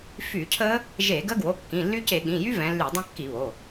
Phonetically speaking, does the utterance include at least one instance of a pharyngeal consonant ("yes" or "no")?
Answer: no